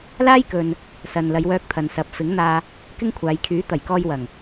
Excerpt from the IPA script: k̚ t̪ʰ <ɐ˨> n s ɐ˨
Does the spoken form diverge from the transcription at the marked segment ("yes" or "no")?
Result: no